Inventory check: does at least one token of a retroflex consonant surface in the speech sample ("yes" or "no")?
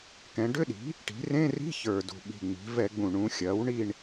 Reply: yes